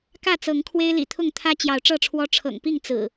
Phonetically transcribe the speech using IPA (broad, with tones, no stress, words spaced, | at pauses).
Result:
kä˥˨t͡sɤ˨˦ŋ kʰwe˦ɪ̯lḭ˨˩t̪ʰʊ˥˨ŋ t̪ʰä˦ t͡ɕjɑ˨˦ʊ̯ʈ͡ʂɤ˥˨ʈ͡ʂʰwɔ˦ ʈ͡ʂʰɤ̰˨˩ŋpi˥˨ŋ t͡sɹ̩˨˩